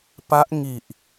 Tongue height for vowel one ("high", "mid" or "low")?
low